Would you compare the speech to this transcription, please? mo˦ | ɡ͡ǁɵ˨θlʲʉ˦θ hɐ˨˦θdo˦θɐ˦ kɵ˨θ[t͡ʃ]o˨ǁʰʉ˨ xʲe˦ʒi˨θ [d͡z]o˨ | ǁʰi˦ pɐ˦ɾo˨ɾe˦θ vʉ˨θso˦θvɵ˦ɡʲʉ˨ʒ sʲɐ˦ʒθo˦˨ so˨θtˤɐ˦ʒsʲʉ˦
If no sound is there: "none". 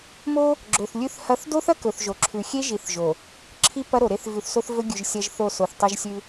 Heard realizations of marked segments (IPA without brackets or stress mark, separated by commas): ʒ, ʒ